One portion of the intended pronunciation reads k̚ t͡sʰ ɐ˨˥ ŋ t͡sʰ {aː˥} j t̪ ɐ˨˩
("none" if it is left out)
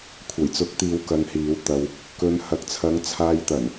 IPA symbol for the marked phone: aː˧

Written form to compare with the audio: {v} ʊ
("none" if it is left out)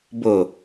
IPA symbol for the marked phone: b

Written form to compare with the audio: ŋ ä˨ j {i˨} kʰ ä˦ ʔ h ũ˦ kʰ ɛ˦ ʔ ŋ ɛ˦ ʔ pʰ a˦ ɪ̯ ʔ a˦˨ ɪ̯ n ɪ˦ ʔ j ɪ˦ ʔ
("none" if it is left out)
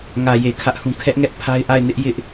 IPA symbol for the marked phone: e˨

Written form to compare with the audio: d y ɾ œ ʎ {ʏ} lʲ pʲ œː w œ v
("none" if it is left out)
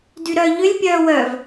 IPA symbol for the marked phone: ʏ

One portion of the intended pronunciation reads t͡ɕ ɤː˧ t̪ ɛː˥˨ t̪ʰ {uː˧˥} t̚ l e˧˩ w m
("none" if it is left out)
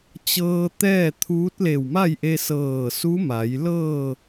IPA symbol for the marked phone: uː˧˥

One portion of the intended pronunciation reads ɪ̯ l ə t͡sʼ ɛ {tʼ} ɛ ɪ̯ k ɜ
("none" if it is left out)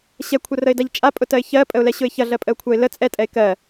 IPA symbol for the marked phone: tʼ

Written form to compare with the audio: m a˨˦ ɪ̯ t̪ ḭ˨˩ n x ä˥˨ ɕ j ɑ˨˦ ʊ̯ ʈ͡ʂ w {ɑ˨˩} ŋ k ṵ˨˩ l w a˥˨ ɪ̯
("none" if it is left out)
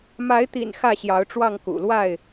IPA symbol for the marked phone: ɑ˥˨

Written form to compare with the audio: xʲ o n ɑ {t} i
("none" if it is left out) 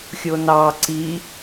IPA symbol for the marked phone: ǀ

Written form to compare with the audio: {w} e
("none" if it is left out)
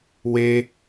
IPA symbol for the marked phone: w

